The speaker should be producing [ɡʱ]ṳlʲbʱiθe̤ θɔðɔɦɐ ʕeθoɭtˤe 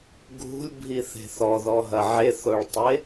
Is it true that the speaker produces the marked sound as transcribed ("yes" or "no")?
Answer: yes